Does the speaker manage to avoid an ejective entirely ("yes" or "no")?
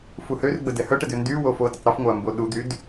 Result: yes